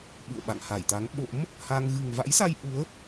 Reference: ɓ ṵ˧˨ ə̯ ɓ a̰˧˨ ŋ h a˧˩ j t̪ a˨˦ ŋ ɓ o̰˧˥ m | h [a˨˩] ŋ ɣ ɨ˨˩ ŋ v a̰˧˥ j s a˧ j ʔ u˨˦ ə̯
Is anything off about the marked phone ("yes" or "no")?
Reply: yes